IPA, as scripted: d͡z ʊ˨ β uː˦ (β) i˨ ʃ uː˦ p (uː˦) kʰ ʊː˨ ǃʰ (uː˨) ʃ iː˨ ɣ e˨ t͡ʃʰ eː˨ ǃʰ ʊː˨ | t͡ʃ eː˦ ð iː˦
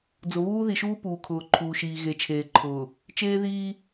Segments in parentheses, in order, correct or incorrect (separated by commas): incorrect, incorrect, correct